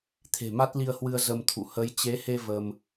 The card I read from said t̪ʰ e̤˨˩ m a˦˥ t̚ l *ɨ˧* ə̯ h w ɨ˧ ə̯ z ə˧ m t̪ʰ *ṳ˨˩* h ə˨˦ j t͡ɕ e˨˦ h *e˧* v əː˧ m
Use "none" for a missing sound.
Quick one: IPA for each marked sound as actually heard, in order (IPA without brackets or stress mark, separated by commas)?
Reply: i˧, ṵ˧˨, e˧